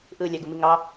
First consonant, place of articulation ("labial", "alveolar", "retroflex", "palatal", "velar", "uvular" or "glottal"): glottal